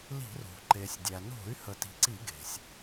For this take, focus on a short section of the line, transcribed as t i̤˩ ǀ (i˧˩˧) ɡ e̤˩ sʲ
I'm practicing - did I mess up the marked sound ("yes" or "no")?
no